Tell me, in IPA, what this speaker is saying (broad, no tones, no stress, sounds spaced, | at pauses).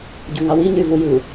ɟ u ŋ ɑ w i ɲ y v u j ɯ